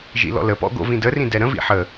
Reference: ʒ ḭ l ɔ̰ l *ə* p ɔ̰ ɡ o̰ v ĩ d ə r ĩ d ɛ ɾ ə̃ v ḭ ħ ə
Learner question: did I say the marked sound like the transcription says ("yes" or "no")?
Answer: yes